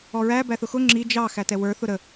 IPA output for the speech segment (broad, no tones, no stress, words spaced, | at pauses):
ɔɹæ bæθʊxʊ ŋ͡ǁi d͡ʒɑ xætɛwə˞ θʊɾə